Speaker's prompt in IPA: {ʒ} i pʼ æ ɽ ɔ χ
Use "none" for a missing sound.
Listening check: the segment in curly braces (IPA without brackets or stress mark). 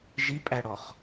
ʒ